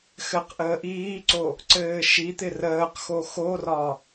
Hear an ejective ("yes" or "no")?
no